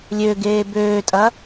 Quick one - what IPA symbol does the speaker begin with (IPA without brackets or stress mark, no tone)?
lʲ